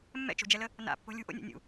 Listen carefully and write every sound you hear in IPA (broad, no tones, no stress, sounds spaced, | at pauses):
mː ɛ̰ t͡ʃ o̤ d͡ʒ ɛ l ə | n a̰ pː o̤ lʲ ṳ ʔ o̰ nʲ o̰ nʲ ṵ